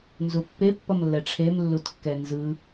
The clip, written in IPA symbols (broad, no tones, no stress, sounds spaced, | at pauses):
n z u pː e pː ʌ m lː ɛ ʈ͡ʂʰ e m lː u t kː ɛ n z ɯ